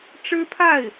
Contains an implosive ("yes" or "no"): no